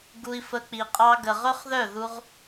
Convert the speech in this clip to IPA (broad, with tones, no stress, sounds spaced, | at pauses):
ɡ u˧ i̯ f ə˧ k͡p i˨ qʼ ɑ˦ ɡ ə˨ ʁ ɵ˦ χ ð œ˦˨ ð u˦ ʁ